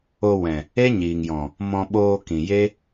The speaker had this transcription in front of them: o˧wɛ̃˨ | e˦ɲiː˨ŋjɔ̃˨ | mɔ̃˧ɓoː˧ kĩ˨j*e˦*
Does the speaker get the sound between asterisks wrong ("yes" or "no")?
no